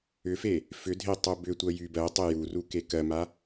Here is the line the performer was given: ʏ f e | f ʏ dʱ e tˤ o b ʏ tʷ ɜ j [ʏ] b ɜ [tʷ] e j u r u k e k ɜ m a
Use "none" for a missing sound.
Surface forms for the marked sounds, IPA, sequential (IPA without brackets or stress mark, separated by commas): y, tˤ